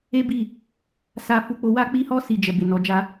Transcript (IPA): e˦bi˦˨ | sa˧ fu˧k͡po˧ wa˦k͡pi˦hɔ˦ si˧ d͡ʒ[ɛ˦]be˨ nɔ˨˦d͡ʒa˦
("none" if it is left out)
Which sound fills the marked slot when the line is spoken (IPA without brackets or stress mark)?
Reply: ɛ˨